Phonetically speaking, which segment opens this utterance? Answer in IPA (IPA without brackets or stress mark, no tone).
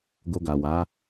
ɡ